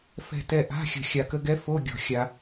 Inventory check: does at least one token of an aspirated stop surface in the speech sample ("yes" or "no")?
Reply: no